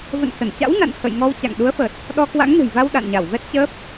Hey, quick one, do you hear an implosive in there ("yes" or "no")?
yes